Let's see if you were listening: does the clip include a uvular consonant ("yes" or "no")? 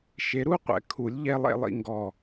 yes